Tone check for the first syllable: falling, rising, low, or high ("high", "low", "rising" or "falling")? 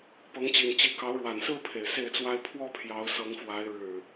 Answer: rising